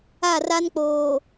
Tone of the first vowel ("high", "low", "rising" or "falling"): falling